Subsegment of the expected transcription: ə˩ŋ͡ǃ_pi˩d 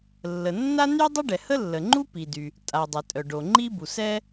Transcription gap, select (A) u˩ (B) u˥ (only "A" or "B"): B